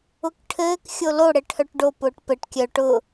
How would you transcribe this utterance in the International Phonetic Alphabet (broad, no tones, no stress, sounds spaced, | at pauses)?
ʊ k ʈʰ ɘː k xʲ o l o ɽ ɘ ʈʰ œ ʈ ɖ o p ʊː ʈ p ɘ ʈ kʲ œ ʈ ʊ